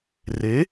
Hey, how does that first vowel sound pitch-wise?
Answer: rising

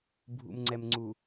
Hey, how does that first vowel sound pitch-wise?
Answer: low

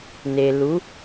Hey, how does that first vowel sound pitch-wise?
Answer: low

